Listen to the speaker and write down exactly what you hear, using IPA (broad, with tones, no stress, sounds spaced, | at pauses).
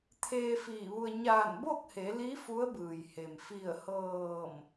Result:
t̪ʰ eː˧ f iː˧˩ ʋ u˧ ə̯ ɲ aː˧˩ n b o˥˨ k̚ h e˩˧ l i˧˥ f u˧˥ ə̯ b ɯː˩ j h e˩ m f i˧˩ ə̯ h ɤː˧˩ m